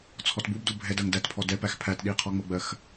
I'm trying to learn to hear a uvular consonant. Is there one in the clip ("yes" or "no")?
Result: yes